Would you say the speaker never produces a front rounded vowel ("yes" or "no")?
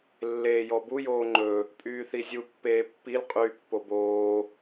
no